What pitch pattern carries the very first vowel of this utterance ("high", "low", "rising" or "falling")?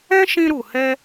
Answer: high